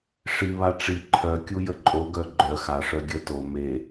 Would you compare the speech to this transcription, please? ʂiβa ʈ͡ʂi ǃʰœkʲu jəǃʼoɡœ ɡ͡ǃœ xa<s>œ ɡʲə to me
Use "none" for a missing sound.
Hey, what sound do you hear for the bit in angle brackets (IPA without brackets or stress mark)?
ʂ